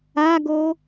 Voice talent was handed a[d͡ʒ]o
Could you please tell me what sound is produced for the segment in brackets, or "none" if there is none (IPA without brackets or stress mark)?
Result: ɡ